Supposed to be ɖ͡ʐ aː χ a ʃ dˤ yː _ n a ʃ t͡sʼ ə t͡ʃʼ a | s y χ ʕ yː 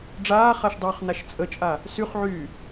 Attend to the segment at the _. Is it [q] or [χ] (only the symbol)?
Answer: χ